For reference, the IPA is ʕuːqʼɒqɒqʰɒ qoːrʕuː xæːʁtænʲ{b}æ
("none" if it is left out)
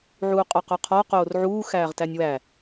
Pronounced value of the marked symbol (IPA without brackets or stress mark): w